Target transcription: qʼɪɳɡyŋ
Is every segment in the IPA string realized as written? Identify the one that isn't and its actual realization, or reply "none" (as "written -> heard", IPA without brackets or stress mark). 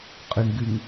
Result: none